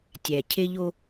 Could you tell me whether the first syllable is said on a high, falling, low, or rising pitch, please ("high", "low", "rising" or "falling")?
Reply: low